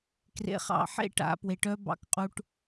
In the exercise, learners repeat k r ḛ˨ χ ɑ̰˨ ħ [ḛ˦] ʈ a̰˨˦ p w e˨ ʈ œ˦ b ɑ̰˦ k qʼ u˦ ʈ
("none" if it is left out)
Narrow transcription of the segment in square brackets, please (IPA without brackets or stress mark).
ḛ˦